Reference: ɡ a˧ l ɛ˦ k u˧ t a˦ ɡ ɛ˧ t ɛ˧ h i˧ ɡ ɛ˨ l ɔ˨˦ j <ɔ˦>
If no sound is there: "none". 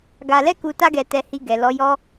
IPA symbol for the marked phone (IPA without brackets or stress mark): ɔ˦